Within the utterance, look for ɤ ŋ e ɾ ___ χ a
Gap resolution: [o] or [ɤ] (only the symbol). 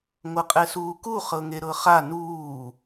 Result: ɤ